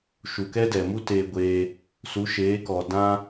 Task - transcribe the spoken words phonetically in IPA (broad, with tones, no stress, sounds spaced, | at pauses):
ʃ u˨ k ɛ˦ d ɛ˨ m u˦ t eː˧ ɡʷ eː˧ | s u˨˦ ʃ eː˨˦ k ɔ˨ d ã˦